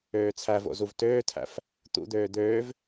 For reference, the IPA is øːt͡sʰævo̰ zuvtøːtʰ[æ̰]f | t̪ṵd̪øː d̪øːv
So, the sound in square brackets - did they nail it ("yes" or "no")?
yes